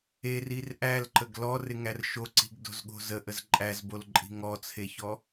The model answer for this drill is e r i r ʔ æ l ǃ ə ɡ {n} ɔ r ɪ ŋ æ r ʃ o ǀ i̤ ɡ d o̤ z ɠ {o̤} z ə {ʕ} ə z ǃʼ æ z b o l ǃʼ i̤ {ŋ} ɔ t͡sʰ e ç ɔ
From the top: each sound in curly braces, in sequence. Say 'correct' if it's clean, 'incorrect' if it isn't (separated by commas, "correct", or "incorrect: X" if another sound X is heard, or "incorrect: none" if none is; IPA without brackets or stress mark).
incorrect: l, correct, incorrect: ʔ, correct